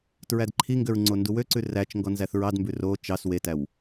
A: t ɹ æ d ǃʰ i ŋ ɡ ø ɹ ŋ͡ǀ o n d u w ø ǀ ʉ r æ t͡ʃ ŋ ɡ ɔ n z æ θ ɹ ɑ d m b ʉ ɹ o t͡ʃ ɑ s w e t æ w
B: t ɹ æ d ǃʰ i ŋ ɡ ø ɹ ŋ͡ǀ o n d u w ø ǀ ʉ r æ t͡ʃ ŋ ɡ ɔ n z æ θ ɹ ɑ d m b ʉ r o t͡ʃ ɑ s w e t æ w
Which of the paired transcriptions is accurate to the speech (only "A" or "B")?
B